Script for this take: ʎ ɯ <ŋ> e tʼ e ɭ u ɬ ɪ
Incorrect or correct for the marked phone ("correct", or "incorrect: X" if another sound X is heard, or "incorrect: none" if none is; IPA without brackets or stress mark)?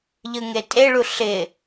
correct